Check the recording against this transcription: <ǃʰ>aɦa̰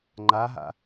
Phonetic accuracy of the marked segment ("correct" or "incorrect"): incorrect